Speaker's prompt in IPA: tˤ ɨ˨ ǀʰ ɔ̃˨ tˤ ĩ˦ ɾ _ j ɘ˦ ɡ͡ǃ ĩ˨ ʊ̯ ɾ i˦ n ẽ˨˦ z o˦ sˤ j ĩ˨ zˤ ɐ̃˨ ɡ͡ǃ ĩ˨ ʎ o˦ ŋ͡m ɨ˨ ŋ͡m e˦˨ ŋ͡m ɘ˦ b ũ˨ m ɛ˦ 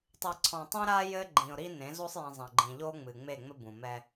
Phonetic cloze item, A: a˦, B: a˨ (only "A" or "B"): A